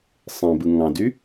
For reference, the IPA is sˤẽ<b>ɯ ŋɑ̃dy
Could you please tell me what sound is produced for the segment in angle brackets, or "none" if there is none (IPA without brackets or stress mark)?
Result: b